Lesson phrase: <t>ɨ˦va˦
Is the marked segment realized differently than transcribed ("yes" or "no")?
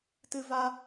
no